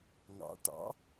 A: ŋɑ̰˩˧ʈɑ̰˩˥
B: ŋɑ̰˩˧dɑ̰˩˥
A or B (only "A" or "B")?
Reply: A